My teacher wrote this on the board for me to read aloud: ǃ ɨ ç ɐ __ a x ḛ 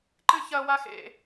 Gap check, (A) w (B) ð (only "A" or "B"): A